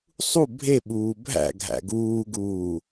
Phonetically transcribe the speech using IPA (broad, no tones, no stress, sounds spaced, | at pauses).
sˤ u bʱ e ɓ uː bʱ æ̰ ɡʱ æ̰ ɡ uː ɡ uː